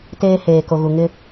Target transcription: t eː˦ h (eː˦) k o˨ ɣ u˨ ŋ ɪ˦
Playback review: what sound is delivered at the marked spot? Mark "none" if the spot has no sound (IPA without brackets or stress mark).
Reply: eː˨